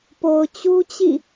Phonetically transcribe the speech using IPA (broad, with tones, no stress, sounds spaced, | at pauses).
p o˨ ʊ̯ t͡ɕ u˦ t͡ɕ ḭ˦˨